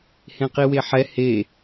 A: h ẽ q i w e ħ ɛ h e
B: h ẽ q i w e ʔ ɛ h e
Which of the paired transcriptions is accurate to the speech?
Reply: A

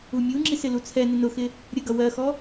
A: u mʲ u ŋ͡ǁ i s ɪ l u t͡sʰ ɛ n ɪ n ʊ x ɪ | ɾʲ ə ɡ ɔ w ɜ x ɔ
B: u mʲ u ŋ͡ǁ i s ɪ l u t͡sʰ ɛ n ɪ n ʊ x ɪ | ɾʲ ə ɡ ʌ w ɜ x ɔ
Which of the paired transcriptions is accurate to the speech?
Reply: B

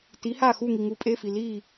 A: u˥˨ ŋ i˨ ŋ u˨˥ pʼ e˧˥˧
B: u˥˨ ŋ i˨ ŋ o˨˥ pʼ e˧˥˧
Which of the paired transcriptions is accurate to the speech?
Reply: A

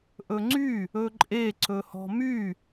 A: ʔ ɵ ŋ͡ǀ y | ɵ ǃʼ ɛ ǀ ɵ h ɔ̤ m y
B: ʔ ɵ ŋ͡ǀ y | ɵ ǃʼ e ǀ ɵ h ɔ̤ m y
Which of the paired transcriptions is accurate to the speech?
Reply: B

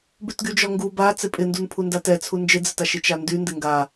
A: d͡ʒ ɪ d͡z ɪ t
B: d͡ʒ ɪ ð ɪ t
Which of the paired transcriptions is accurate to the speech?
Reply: A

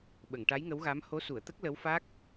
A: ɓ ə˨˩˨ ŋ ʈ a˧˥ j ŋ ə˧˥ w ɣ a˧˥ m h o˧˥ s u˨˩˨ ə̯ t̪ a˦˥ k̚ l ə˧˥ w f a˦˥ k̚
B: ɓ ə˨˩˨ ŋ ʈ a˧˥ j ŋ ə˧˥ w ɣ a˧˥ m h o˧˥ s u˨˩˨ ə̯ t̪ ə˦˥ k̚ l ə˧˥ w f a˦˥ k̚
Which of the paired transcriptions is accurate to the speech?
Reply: B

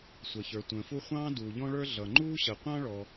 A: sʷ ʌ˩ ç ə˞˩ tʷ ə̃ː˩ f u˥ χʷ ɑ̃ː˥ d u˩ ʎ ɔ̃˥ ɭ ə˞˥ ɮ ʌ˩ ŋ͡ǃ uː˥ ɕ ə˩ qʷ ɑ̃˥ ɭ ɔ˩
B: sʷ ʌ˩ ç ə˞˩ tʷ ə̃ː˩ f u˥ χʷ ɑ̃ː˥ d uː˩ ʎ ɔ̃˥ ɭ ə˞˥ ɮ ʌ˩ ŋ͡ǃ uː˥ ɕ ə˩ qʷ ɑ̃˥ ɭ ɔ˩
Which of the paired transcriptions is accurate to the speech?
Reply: B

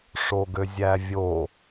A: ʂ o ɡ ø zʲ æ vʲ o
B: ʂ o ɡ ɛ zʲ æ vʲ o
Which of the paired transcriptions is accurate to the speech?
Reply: A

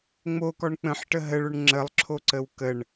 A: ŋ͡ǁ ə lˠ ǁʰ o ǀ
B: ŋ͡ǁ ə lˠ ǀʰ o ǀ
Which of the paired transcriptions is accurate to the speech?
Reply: A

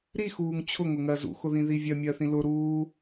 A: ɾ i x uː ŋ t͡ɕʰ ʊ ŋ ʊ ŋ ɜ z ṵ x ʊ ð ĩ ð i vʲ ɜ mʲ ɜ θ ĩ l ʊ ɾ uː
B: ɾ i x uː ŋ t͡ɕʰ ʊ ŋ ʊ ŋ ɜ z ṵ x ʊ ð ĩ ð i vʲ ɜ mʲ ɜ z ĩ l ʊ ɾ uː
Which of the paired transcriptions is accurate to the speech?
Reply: A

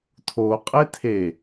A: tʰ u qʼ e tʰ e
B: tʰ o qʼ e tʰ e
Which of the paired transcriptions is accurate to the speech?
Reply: B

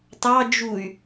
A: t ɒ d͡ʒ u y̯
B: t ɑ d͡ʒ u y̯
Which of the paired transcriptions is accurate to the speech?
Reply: B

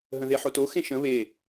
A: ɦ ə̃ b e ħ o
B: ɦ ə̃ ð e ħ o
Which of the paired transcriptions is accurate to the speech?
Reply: B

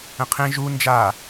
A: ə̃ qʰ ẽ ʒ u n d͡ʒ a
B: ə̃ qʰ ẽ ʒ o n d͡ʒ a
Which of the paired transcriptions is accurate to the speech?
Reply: A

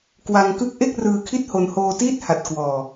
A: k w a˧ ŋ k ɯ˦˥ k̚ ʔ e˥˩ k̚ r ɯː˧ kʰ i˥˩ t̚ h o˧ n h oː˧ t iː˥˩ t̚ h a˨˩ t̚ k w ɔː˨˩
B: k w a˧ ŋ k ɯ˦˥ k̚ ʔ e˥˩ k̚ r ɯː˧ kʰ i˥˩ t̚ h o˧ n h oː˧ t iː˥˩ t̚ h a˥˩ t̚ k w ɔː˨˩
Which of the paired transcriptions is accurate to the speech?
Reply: A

